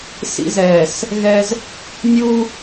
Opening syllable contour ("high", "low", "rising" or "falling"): high